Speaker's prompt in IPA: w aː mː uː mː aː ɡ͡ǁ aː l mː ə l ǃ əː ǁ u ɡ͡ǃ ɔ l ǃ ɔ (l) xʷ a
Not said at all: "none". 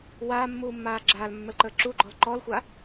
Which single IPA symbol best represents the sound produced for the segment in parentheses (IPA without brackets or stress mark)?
l